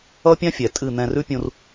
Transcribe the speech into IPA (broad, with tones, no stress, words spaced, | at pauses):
ʌ˦pʲã˦ fʲɛ˨tʼɨ˦˨n̪ɛ̃˧ rʉ˦pʲũ˧r